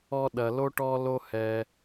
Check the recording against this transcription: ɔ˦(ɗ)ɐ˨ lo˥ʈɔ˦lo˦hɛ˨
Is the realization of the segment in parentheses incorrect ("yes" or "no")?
no